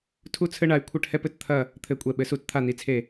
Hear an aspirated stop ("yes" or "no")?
yes